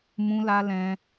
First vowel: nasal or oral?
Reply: nasal